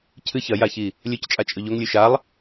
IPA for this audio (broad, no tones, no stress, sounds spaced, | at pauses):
cʰ ɨ ç ɐ j a ç i | lʲ ɵ c t͡ʃʼ a t͡ʃʼ ɵ ʎ o ŋ lʲ ʉ ʃ a lˠ